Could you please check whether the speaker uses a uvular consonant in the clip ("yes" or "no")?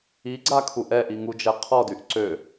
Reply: yes